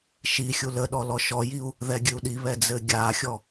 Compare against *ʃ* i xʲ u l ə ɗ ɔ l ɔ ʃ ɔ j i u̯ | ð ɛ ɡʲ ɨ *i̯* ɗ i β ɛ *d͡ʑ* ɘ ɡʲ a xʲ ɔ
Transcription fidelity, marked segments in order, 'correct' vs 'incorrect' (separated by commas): correct, incorrect, incorrect